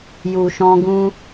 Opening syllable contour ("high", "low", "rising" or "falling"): low